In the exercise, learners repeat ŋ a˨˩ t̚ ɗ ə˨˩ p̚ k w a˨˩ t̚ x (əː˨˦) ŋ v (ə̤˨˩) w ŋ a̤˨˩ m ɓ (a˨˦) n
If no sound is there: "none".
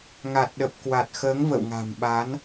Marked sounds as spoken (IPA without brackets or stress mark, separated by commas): əː˨˦, ə̰˧˨, a˨˦